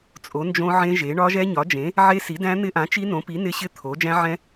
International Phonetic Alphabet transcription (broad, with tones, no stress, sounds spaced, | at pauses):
t͡sʼ o˨˥ n d͡ʒ õ˦˥ ʕ ẽ˦˥ ʒ e˨˥ ɳ ɒ˦˥ ʒ ɛ˦˥ ɲ ɒ˨˥ d͡ʒ ẽ˨˥ | ʕ e˦˥ s i˨˥ d æ̃˦˥ n̪ ɪ˦˥ ʔ ã˨˥ t͡ʃ i˦˥ n õ˨˥ p i˨˥ n ɪ˦˥ ɕ ɪ˦˥ t̪ʰ o˨˥ d͡ʒ æ̃˦˥ ʕ ɛ̃˦˥